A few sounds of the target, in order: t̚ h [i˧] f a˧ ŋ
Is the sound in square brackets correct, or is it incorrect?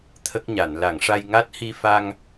correct